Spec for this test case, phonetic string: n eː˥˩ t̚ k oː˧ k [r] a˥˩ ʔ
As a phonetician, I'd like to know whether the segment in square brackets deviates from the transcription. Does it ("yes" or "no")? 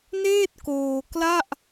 yes